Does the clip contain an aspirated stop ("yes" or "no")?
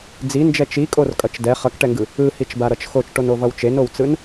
no